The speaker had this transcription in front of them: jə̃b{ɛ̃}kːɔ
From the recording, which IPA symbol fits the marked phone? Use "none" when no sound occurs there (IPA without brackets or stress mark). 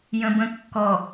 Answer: ə̃